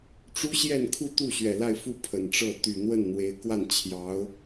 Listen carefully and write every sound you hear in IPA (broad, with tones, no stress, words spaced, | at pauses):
ʈ͡ʂu˥ɕjɛ˥˧nkʰu˥˧t̪u˥˩ ɕɥɛ˨˩la˥˧ɪ̯fu˥˩ pʰə˨˩nʈ͡ʂɤ˥˩ t̪y˨˩n̪wə˥˩nn̪we˧˥ɪ̯ kwa˥˩nt͡ɕʰjɑ˧˥ʊ̯